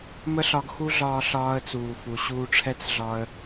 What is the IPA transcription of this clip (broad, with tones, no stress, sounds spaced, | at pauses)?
m ə˦ ɬ ɒ˧ ɡ x u˦ ɮ ɒː˧ ɬ ɒː˧ ə̯ t͡s uː˨ f u˨ ɕ uː˧ ʈ͡ʂʰ ɛ˦ t͡s ɮ ɒ˧ ə̯